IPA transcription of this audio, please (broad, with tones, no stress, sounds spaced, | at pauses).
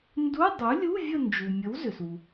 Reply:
n d u˧˥˧ dˤ u˩˥ lʲ u˧˥˧ vʲ ə˦˨ n d͡ʒ u˩ mʲ ə˩˥ w z ʏ˩ s u˩